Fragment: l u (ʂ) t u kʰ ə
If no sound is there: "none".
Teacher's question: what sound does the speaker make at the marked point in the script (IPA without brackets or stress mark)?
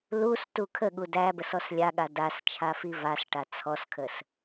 s